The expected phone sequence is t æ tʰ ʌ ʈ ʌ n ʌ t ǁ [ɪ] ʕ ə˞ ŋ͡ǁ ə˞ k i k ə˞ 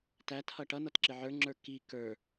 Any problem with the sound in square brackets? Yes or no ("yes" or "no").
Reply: no